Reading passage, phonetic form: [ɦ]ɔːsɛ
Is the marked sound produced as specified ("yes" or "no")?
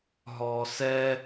yes